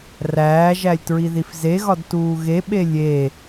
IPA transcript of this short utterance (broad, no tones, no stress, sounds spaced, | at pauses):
r æː ʒ æ lʲ t ɹ i ð i f z e ɣ ɒ d t uː ɣ e ɓ e lʲ e